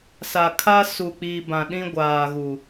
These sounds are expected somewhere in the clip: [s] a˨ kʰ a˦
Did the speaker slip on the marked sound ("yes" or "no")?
no